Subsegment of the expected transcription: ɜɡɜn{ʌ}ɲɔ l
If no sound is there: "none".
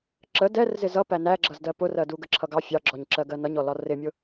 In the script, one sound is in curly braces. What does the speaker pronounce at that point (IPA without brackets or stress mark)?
ʌ